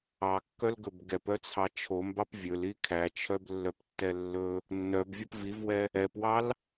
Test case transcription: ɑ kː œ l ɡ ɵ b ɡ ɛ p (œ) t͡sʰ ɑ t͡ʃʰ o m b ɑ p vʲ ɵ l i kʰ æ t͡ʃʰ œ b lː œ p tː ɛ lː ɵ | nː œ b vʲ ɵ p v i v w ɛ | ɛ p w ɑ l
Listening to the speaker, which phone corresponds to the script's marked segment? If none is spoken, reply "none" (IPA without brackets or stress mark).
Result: œ